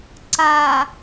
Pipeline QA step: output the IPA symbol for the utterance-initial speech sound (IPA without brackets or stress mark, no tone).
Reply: ǀ